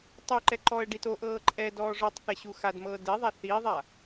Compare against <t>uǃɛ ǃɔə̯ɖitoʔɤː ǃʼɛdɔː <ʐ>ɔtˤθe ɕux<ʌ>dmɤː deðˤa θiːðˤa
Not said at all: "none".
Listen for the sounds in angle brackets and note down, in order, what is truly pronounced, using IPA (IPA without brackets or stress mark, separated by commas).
tˤ, ʐ, a